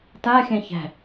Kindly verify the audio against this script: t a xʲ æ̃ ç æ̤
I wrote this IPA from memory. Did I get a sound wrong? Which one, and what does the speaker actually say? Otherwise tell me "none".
none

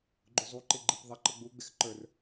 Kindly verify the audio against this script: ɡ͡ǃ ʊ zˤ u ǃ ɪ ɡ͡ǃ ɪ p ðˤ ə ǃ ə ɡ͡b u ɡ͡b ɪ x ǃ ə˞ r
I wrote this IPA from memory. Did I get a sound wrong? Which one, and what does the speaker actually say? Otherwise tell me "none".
none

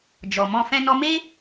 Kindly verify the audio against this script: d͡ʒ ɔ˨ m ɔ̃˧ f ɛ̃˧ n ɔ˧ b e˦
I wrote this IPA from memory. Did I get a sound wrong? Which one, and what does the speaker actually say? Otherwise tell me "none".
b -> m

